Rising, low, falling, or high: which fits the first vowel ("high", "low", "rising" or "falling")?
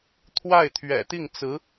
falling